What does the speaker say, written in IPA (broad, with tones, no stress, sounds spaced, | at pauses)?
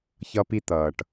ç ʌ˦ p i˦ t̪ ʌː˨ ʈ